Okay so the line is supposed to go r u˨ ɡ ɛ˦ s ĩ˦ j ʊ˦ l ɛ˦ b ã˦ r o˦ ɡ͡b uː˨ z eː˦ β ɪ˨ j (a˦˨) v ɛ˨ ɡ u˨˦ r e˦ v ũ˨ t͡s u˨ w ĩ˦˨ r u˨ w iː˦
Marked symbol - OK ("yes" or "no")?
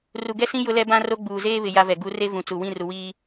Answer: no